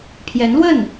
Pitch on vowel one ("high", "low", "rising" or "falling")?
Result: rising